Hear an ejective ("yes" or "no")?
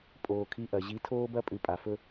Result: yes